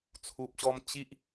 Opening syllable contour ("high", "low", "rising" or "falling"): low